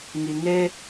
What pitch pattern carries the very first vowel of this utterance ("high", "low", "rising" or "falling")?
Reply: low